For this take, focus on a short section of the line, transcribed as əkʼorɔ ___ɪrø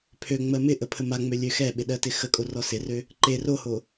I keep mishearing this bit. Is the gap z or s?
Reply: s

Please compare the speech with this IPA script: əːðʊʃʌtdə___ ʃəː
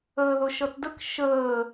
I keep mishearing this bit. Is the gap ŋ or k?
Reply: k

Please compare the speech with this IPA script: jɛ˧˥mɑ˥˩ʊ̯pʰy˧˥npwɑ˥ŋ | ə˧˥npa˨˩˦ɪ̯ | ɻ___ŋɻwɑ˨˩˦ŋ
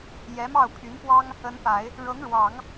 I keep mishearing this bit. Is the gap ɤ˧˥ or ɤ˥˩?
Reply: ɤ˧˥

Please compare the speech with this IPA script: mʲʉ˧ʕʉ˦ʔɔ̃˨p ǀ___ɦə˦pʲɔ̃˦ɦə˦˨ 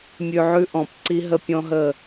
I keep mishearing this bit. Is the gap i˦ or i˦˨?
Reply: i˦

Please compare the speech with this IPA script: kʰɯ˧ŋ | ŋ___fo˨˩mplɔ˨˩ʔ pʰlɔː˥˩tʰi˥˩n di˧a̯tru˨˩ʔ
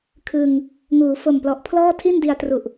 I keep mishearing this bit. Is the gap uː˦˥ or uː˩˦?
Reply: uː˩˦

